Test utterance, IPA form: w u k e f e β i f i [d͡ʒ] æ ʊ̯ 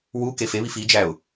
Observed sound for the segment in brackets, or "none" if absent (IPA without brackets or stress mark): d͡ʒ